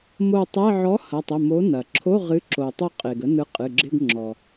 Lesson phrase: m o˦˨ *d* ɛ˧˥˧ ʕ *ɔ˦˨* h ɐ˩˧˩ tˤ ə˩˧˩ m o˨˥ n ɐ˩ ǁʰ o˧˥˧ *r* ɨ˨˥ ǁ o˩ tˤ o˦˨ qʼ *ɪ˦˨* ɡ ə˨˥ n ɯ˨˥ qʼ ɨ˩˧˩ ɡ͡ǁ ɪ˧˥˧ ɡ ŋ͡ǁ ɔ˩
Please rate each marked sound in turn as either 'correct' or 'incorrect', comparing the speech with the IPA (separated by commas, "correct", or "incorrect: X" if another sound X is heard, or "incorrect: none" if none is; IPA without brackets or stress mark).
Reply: incorrect: tˤ, incorrect: ɔ˨˥, incorrect: ʁ, incorrect: ɪ˩